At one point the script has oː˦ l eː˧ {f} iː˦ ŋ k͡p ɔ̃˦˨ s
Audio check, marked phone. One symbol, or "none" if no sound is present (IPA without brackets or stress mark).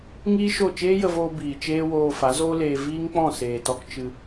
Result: v